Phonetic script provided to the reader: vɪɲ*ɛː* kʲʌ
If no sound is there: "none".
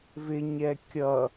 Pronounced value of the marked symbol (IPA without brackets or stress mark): ɛ